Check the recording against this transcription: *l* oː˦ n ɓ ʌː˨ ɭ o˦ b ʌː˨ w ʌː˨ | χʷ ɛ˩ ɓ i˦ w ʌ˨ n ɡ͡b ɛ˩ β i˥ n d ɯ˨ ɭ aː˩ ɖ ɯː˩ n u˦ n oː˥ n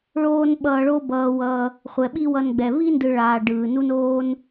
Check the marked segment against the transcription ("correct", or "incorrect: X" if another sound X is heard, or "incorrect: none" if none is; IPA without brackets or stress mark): incorrect: ɭ